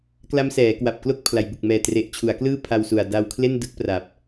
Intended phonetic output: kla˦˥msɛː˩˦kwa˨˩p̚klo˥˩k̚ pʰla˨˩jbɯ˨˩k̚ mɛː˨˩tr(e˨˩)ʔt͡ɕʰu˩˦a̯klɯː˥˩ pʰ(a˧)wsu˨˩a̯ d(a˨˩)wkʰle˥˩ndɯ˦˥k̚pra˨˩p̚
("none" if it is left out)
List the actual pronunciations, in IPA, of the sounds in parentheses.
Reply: e˨˩, a˧, a˧

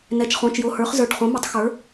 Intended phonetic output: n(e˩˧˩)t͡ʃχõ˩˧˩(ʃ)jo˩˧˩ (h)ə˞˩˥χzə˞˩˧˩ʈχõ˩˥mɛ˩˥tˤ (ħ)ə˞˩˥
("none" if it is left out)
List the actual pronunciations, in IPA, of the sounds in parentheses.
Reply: ɛ˩˧˩, t͡ʃ, h, x

